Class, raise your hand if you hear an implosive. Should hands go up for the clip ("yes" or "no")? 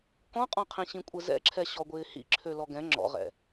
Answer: no